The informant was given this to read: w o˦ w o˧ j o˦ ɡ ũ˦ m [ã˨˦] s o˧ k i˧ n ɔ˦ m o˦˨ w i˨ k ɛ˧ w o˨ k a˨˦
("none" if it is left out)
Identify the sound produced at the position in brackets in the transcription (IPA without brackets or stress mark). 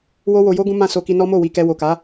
ã˦˨